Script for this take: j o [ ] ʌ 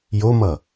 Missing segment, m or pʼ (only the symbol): m